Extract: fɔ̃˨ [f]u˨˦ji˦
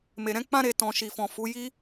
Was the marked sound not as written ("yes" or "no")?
no